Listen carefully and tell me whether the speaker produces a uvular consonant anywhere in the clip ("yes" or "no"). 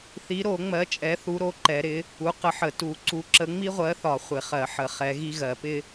yes